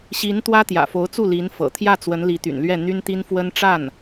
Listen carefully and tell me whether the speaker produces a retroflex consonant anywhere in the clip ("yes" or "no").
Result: yes